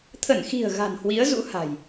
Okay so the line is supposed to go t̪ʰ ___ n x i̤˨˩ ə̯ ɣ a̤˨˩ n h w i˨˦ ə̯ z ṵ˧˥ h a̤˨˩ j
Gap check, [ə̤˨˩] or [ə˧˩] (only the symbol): ə˧˩